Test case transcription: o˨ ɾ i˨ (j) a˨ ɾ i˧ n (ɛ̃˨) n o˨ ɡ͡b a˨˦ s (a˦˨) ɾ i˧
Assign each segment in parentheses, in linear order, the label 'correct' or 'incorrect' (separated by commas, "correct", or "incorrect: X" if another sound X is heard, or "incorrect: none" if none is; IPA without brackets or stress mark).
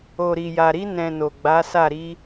correct, correct, correct